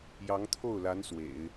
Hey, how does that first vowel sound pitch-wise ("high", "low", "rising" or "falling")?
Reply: rising